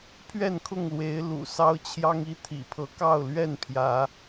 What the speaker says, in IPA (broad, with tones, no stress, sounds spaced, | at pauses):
pʰ ɥ ɛ˥˨ n kʰ ʊ˥˨ ŋ l w e˨˦ ɪ̯ l ṵ˨˩ s ɑ˦ ʊ̯ t͡ɕʰ j ɑ˦ ŋ i˦ t̪ʰ ḭ˨˩ pʰ ɤ˨˦ k ɑ˥˨ ʊ̯ l ɥ ɛ˥˨ n pʰ j ä˨˦